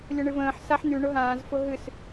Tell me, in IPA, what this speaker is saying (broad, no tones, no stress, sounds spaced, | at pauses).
lʲ ʊ ɳ ɨ v ə̃ː ħ s a ħ n̪ y ɳ ʊ ɦ ãː z f ʊ ɦ ɨ s